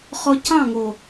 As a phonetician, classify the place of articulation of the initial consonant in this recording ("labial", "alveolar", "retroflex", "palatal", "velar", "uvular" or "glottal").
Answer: uvular